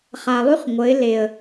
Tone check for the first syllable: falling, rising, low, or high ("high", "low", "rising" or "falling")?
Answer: low